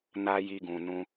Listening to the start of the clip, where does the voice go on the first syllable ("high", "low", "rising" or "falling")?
high